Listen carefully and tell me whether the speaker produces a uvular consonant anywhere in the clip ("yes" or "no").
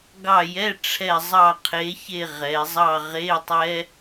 yes